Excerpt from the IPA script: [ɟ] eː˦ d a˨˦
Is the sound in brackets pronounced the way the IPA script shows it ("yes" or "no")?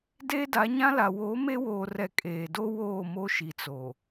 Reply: no